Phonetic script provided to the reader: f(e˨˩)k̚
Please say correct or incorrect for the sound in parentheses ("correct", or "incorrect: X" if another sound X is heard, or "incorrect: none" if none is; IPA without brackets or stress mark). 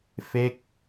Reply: incorrect: e˦˥